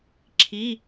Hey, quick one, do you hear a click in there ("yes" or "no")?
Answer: yes